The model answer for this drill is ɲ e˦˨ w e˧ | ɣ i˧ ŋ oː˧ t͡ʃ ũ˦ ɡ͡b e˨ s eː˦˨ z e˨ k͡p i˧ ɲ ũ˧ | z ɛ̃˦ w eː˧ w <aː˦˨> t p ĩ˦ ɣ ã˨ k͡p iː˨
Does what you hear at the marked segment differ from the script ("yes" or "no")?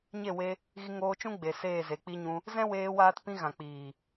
yes